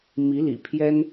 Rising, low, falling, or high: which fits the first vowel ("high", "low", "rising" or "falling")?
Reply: rising